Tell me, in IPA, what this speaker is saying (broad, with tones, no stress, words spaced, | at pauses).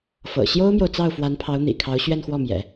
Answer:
fɤ̰˨˩ ɕjo˥ʊ̯mjo˨ʊ̯ t͡sɑ˥˩ʊ̯fwa˧˥npʰɑ˧˥ʊ̯n̪ḭ˨˩ kʰɑ˧˥ʊ̯ɕɥɛ˥˧nxwɔ˥˩mjɛ̰˨˩˦